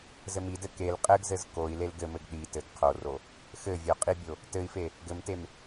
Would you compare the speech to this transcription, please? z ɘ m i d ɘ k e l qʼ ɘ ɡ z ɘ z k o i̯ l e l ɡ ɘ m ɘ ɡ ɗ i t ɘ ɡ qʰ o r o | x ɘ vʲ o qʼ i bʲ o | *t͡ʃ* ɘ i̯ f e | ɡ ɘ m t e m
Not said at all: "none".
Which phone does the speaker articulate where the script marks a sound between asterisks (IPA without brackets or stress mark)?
t